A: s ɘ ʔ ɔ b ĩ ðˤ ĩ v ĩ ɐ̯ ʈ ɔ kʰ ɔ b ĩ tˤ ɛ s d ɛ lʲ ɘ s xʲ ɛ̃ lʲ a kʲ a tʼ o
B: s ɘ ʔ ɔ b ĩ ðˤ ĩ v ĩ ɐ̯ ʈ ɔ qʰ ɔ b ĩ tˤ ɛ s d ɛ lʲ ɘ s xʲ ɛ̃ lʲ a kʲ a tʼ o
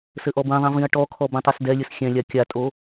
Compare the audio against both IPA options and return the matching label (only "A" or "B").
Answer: A